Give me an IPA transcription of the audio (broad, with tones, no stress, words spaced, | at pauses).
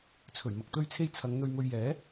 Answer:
t͡sʰɵ˨˩ɥmɐ˨k̚t̪ɵ˧ɥt͡sʰe˧j t͡sʰɐ˨˧ŋn̪ɵ˧ɥ mɵ˨ɥ jɛː˨˥